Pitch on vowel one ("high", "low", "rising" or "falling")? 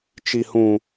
low